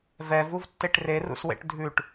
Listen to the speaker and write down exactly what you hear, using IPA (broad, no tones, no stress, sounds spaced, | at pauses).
v ɛ v u v tː e ʈ r e r ṵ s w ḛ ʈ dʱ ʉ ʈ